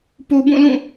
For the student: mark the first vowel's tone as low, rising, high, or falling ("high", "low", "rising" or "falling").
low